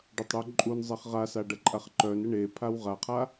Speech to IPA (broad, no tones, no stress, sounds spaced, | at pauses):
ɖ ɐ tˤ ɽ u ǃʼ u n zˤ e χ ʁ a s a ɖ ɐ ǃʼ a χ ǃ œ n ə ɳ e pʰ a w ʁ a qʰ a